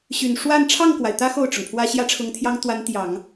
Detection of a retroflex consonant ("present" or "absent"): present